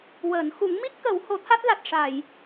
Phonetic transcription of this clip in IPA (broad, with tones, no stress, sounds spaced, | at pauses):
w əː˨˩˨ n x u˨˩˦ ŋ m i˦˥ t̚ k ə˨˩˦ w h o˨˩˦ t̪ʰ a˦˥ t̚ l a˨˩ t̚ ʂ a˨˩˨ j